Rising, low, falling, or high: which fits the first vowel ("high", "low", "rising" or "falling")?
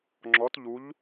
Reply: rising